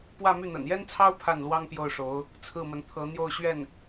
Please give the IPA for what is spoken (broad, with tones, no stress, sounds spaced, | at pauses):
p w ä˥˧ m y˥˩ n̪ ə̰˨˩ n j ɛ˥ n t͡sʰ ɑ˥ ʊ̯ pʰ a˥˩ n l w ɑ˥ ŋ p j o˥˩ ʊ̯ ʂ o˧˥ ʊ̯ | t͡sʰ ɹ̩˥˩ m ə˧˥ n t̪ʰ ɤ˧˥ n̪ j o˥˧ ʊ̯ ɕ ɥ ɛ˥˩ n